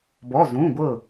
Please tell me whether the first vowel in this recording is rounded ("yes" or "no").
yes